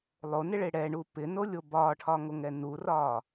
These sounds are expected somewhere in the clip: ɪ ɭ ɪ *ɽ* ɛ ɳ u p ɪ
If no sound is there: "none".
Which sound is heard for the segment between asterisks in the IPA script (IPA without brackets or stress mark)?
ɽ